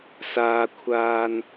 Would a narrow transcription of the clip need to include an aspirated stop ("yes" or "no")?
yes